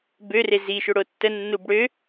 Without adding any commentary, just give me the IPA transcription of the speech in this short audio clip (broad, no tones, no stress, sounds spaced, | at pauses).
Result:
b ø r e z i ʃ ø ɽ o tː ə nː u b ɽ ø